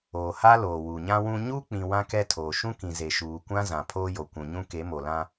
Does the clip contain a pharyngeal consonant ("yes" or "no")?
no